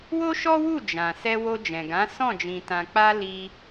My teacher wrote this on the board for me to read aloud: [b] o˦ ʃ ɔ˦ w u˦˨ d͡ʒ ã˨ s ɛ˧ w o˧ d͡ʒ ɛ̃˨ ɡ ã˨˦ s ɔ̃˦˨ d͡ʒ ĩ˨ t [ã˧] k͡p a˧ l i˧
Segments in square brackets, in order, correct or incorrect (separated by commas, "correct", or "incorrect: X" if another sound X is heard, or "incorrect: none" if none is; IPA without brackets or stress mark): incorrect: w, incorrect: ã˨